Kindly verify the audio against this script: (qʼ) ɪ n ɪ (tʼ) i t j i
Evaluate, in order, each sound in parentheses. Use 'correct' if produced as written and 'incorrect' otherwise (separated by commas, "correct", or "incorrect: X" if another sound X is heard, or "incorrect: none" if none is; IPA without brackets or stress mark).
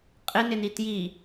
correct, incorrect: n